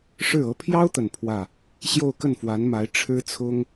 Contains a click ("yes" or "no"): no